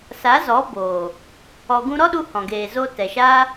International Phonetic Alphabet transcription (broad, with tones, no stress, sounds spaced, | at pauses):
s a˨˦ z ɔ˨˦ b oː˨ | ɔ˧ ɡ ũ˦ ɾ ɔ˦ ɗ u˧ h ɔ̃˨ ɡ eː˨ z oː˧ t ɛ˨ ʃ aː˦